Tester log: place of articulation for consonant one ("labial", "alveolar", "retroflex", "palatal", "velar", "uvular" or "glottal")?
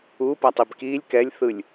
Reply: labial